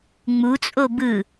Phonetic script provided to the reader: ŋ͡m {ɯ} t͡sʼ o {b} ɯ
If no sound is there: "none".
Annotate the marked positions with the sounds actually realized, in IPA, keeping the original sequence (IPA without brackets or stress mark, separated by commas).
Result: u, b